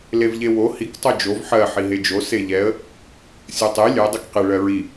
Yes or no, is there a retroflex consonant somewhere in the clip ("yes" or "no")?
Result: yes